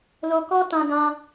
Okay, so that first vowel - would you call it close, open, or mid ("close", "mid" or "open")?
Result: mid